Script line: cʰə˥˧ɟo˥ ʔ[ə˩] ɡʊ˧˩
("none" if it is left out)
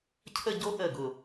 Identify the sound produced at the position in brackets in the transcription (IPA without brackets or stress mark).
ə˧˩